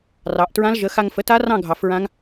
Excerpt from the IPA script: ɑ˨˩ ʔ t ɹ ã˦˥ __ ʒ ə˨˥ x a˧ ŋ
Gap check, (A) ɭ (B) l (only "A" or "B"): B